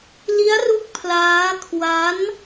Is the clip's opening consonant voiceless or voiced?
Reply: voiced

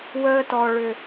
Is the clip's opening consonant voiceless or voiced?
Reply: voiced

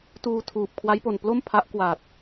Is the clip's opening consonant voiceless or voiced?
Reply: voiceless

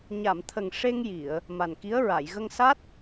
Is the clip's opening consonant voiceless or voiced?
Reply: voiced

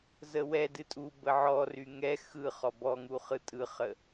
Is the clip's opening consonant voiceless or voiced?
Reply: voiced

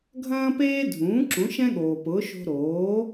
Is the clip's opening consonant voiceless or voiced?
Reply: voiced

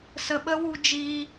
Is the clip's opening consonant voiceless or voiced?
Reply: voiceless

